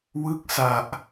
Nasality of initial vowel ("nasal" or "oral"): oral